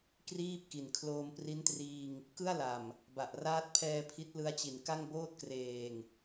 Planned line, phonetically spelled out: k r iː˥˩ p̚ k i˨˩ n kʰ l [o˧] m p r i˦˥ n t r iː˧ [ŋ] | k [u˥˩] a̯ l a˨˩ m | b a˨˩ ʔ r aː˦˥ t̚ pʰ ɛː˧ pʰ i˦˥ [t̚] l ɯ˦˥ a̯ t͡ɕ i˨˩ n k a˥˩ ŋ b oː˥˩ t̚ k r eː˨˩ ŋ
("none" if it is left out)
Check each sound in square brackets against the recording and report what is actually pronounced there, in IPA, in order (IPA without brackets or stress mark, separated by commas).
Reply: oː˧, ŋ, ɯ˥˩, t̚